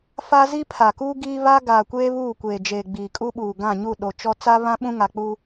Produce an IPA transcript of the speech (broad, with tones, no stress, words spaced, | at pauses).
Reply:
fa˦ zi˦pʰa˨kuː˦ ɡiː˦βa˦ ɡaː˨kʷeː˦ βuː˦˨kʷeː˨d͡ʒeː˨ ɡ͡biː˨kʼu˦ɓuː˨ ɡã˦˨ɲu˦˨ ɗo˨t͡ʃɔ˦ t͡sa˦βã˦ ɓũ˦ ŋa˨k͡puː˦